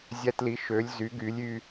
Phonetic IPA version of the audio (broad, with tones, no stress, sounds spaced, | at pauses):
zʲ æ˧ t l i˩˥ ʃ ø˩˧ lʲ z y˩˧ ɡ y˩˧ lʲ y˧